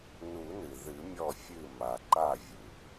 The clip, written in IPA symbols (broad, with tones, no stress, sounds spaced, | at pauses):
n u˨˩˦ n ɨ˩ ð ɨ˨˩˦ mʲ ɔ˧˩ fʲ ɨ˧˩ m a˩ ǃ a˧˩ vʲ ɨ˩ p